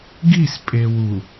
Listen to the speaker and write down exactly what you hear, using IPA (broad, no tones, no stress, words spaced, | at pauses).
ɡispʼe wu